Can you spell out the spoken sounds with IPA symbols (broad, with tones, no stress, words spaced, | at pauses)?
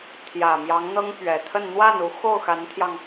t̪ʰjä˨˩mjɑ˧˥ŋn̪ɤ˥ŋ pɥɛ˨˩t̪ʰə˥˧n n̪wa˥˩nu˧˥ xo˥˩ʊ̯xa˧˥nt̪ʰjɑ˧ŋ